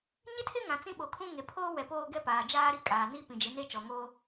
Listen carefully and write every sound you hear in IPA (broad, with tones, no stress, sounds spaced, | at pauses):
ɲ ɪ˦ tʰ ɪ˦ ŋ ã˨ t͡s ĩ˦ ɓ o˨ kʰ ũ˦ ŋ e˨ pʰ oː˦ w ɛ˨ p oː˦ ɡ ɛ˦ p aː˨ d͡ʒ aː˦ ɾ i˦ kʼ aː˨ n i˦ p ĩ˨ d͡ʒ ɪ˨˦ n e˦ t͡ʃ ɔ˨ ŋ oː˦